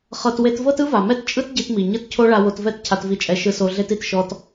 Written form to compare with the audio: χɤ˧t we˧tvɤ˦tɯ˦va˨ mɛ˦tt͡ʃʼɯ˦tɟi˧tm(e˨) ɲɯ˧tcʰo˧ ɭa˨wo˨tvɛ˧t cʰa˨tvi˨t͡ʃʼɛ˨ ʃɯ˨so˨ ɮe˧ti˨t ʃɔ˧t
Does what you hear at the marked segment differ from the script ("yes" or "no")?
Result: yes